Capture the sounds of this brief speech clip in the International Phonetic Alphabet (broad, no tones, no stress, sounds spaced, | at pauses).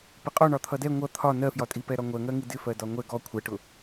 p ɪ qʼ ɔ ɳ ɒ t̪ʰ ʌ d ɛ ŋʷ ʌ t̪ʰ ɒ n ɜ f j ɒ tʼ i p ɛ ɾ ɒ ŋʷ ɜ ŋ ɜ ŋ i d ɪ f ɜ d ɒ ŋʷ ɛ ɡ ɔ kʷʰ ɛ ʈ ʊ